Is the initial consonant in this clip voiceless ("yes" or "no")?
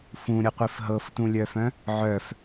yes